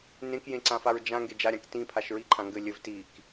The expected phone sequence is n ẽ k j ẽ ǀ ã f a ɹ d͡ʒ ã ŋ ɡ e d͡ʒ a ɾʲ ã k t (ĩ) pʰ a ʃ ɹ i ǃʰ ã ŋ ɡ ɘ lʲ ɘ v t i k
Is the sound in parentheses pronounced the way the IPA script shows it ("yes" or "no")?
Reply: yes